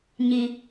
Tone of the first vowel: low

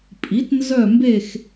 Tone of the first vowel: rising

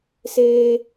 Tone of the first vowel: high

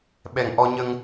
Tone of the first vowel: low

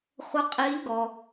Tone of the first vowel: rising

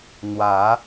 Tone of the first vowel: rising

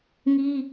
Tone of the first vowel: high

